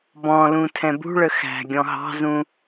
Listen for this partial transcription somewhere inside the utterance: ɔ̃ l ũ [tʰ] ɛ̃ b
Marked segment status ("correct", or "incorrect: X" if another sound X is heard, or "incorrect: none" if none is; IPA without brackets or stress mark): correct